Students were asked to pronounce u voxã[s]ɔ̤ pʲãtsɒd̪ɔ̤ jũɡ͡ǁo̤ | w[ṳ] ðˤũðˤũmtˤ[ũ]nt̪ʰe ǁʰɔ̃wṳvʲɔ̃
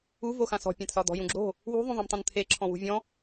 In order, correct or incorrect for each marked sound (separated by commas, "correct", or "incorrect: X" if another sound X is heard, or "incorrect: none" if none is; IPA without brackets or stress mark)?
correct, correct, incorrect: õ